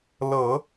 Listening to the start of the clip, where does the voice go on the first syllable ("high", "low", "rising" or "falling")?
low